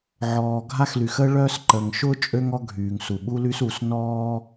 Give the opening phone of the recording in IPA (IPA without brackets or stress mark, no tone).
ʕ